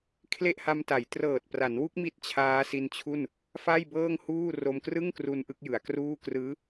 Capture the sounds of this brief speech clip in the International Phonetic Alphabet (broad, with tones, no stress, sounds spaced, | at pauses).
kʰ l e˥˩ ʔ h a˧ m t a˩˦ j t r ɤː˨˩ t̚ p r a˩˦ n w u˦˥ k̚ m i˥˩ t̚ t͡ɕʰ aː˦˥ s i˧ n t͡ɕʰ u˥˩ n | f a˥˩ j b ɤː˥˩ ŋ h uː˥˩ r o˧ m k r ɯ˥˩ ŋ k r u˧ n ʔ ɯ˦˥ k̚ j ɯ˩˦ a̯ k r uː˥˩ k r ɯː˦˥